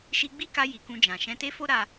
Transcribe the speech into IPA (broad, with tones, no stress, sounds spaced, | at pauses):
ʃ i˧ ɡ͡b i˦ k a˧ j i˨ k ũ˧ d͡ʒ ã˨ ʃ ɛ̃˧ t e˦ f o˦ ɾ a˧